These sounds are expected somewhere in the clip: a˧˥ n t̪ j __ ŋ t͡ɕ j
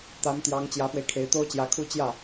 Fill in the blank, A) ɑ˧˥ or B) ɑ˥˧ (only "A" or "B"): A